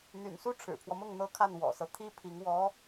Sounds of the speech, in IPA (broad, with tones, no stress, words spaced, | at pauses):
n̪y̰˨˩nsu˥ ʈ͡ʂʰɻ̩˨˩pʰwɔ˦mʊ˥˩ŋ n̪ɤ˥kʰa˥˩n wɔ̰˨˩sɤ˦t̪ʰi˥ pʰi˧˥ŋ wɔ˧˥